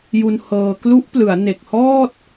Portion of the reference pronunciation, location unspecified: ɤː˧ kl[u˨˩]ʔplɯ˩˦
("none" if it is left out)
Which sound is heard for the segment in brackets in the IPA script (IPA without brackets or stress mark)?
u˦˥